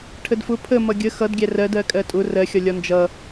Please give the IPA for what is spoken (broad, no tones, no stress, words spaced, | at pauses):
ʈʰədfʊ pʰə mʌɡʲə xʌdɡʲæ rɜdɜkʼɜ tʼʊ rɜxʲɒ lʲɒnd͡ʒʌ